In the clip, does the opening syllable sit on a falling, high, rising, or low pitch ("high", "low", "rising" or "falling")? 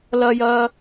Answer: high